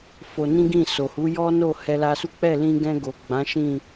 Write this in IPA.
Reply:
f o˧ n ĩ˦ ɡ ĩ˦˨ s o˨ h u˨˦ j ɔ˦ n o˦˨ h ɛ˧ l a˧ s u˦ k͡p ɛ˦˨ l ĩ˧ ɡ ɛ̃˧ ɡ o˨ ɡ͡b ã˨˦ ʃ ĩ˦˨

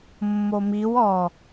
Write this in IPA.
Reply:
mː o m i w ɔ

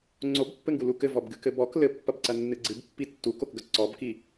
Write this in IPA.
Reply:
ŋ͡ǀ o b pː ɘ ŋ ɡ u l u k ɘ v ɔ b ɡ ɨ k ɘ b ɔ k l ɘ pː ɐ b ǀ ɐ nː ɨ ɡ͡ǀ ɨ b pː i tː u k o k ɡ ɐ ǀ ɔ b k i

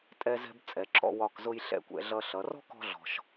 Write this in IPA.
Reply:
tʼ ɛ˧ z ɛ̤˧ b t͡sʼ ɛ˩˧ ǁ ɔ̰˧ w ɒ˧˩ k z ʊ˧ j ɬ ɛ̰˧˩ kʷ ɛ̰˩˧ ɮ ʌ˧ ɬ ʌ˩˧ r ɔ̤˥ k ɔ̤˥ ɮ ɔ̤˧ ʃ

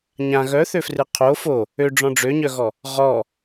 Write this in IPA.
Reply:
ɲ ã ɣ œ θ ø f r ɨ qʰ o f o | ø ɖ͡ʐ ɔ̃ ɖ͡ʐ ø ɲ œ ɣ ɔ | ʁ ɔ

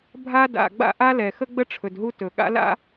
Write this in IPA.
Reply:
bʱ a˥ d a̰˩ ɡ͡b a̰˥ ʔ a˥ l ɛ˩ x ə˥ ɡ͡b ə˥ ʈ͡ʂʰ ɵ˩ d ɦ u˥ t ɵ˩ ɠ a̰˥ l a̰˥

